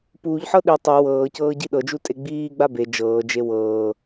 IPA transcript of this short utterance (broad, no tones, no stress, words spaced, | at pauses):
puːʎħɤ ɗi tˤe wɤːcɤː ɟiɗɤd͡ʒu tʼeɡ͡biːɡ͡ba be d͡ʒɤːd͡ʒe wɤː